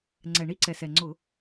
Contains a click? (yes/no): yes